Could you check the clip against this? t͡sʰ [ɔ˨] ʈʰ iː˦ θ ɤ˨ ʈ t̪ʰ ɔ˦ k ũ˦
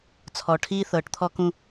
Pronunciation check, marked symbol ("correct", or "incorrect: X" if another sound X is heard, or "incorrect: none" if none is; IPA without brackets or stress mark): correct